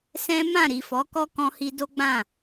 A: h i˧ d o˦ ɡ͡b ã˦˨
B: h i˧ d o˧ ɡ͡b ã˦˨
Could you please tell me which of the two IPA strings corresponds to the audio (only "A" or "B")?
A